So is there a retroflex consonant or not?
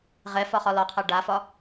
yes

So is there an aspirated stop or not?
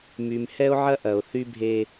no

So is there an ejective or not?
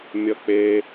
no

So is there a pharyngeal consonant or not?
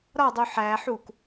yes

